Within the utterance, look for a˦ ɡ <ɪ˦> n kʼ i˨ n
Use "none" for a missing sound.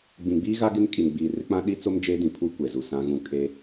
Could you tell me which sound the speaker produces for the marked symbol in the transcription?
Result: ɪ˦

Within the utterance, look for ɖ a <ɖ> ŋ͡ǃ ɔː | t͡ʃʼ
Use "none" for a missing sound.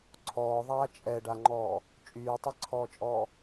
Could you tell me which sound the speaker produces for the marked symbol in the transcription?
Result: none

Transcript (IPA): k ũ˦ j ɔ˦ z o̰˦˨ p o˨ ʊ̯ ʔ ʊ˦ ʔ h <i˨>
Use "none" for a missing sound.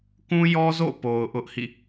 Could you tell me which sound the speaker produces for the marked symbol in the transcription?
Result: ḭ˦˨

